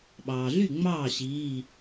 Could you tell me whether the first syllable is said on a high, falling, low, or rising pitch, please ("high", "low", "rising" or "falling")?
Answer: low